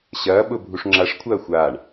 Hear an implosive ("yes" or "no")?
yes